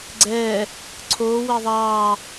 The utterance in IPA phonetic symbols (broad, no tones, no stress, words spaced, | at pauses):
ɡ͡ǀɛː | ǀʰoː wɛðˤɑː